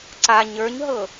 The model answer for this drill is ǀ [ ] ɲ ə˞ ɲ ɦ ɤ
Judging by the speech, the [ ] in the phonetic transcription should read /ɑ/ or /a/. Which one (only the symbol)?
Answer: a